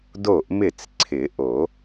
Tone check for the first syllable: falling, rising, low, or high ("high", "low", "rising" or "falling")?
falling